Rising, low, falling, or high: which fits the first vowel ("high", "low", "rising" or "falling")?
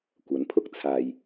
rising